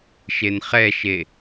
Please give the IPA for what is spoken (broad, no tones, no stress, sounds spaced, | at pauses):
ʃ e n χ ɛ ʃ e